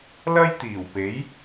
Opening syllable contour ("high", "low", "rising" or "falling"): high